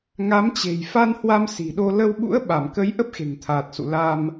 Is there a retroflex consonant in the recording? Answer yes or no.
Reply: no